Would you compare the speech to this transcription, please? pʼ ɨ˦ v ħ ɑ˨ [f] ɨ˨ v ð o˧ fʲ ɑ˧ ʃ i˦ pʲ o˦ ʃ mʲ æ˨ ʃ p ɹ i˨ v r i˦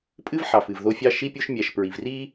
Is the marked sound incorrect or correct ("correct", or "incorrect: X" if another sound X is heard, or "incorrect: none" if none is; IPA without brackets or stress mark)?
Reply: correct